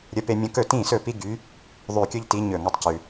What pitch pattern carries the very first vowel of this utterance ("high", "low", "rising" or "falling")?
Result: high